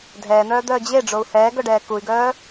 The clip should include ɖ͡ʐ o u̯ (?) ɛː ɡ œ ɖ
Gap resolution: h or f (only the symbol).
h